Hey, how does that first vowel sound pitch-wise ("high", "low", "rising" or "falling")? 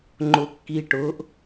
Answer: low